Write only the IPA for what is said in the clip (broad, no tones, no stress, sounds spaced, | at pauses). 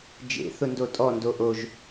d͡ʒ ḛ θ ʊ n d o tʼ ɔ n d o ʔ o ʒ